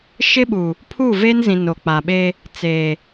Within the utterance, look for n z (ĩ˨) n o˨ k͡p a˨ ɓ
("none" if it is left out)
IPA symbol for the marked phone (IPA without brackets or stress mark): ĩ˨